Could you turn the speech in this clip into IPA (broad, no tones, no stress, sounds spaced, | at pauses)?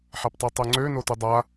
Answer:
ħ a p tˤ ø tˤ ø ŋ͡ǀ ø n o t u dˤ a